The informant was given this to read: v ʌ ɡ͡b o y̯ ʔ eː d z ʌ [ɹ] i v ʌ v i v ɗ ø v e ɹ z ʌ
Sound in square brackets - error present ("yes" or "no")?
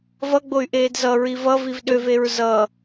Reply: no